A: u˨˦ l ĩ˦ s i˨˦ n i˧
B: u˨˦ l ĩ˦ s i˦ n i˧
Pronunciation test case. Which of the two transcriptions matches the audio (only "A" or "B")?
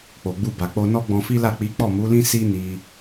B